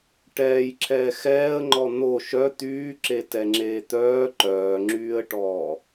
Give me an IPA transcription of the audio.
ʈ ɛː j ǁʰ ɛː x ɛː ə̯ ŋ͡ǃ ɔ n̪ o ʃ œ t̪ yː ǁ e t ɛ ŋ͡ǁ eː t̪ œː ǃ œː ŋ͡ǁ yː ə̯ ʈ ɔː

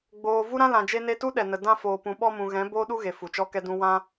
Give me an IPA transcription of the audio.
ɡ͡b oː˨ v u˦ ɾ ã˦ l ã˨ d͡ʒ e˧ n e˧ t u˦ ɗ ɛ˨ n ə˨ d ã˧ f oː˨ p ũ˨ ɓ ɔ˧ m ũ˨ ɣ ɛ̃˨˦ b oː˦ ɗ u˦ ɣ e˨ f u˨ t͡ʃ ɔ˦ k ɛ˦ d ũ˦ w ã˦

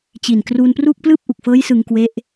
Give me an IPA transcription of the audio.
t͡ɕ i˨˩ n k r uː˧ n p r uː˥˩ k̚ p l ɯː˥˩ p̚ ʔ u˨˩ k̚ f ɤː˦˥ j s ɯ˧ ŋ k w e˦˥ ʔ

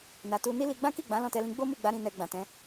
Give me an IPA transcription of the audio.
n a˨ t u˧ n i˦ l i˧ ɡ͡b ã˦ k i˦˨ ɡ͡b ã˨˦ l ɔ̃˦˨ t ɛ˧ l ĩ˧ ɡ͡b o˦ m u˦˨ ɡ͡b a˨˦ ɾ ĩ˧ n ɛ˧ ɡ͡b ã˨ t ɛ̃˨˦

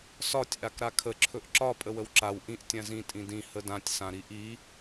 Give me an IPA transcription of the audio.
s ɒ tʲ ʔ a k ɾ a kʰ ə ǁʰ ɵ ʔ ǁ ɒ pʼ ə w ə w ǁ a w ʔ ĩ ʔ tʲ ã z ĩ tʼ ĩ d ĩ h ə d ã tʲ s ã ɾ i ʔ i

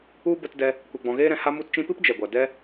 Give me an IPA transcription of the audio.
u˦ b ə˧ t d ɛ˧ | kʷ e˧ ɡ͡b ɔ̃˧ ɣ eː˦ ɾ ɛ̃˧ h a˦ m u˦ t t͡ʃ ĩ˦ p ɨ˦ p d͡ʒ ɛ˨ ɡʷ a˨ d ɛ˦

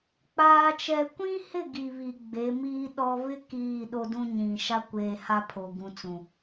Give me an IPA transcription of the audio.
k͡p aː˦ t͡ʃ ɛ˦ kʷ ĩ˦ h ɪ˦˨ ɡ i˨ β i˨ ɡ͡b e˨˦ m iː˦ ɗ ɔ˦ β ɪ˦ k iː˦˨ ɗ o˦ d ũ˦ ɲ ĩ˨ ʃ a˦ kʷ eː˨ h a˦ pʰ o˨ ɡ ũ˨ t͡s ũ˨

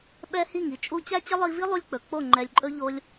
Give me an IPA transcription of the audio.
ɓ ɛ˦ h i˦˨ ŋ i˧ t͡ʃʼ u˦ t͡ɕ æ˦ t͡ɕ ə˦ lˠ i˧ v i˦ lˠ u˦ lʲ k͡p ɵ˨ k͡p o˦˨ ŋ͡ǃ ɛ˨ lʲ ǃʼ ɵ˦ ʎ o˦ lʲ

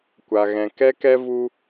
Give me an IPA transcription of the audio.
kʷ a˨ ɣ ɛ̃˨ k ɛ˧ k ɛ˧ v u˧

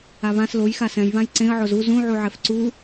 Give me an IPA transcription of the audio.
a β ã s l o j x a s ɛ̃ j β ã j ǀ ẽ ə̯ ʕ o z u z ũ ʕ u ʕ ɛ f ǀ u

